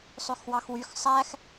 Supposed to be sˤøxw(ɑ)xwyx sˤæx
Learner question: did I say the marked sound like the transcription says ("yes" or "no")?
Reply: yes